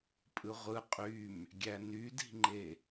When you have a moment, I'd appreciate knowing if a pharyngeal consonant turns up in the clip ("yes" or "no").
no